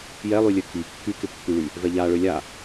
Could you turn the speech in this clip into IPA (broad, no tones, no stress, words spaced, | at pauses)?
jɛlˠylʲø ki kːykɪ pːyɭy | vɛʎaɭø lʲa